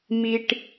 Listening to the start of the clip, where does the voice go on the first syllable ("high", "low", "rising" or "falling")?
high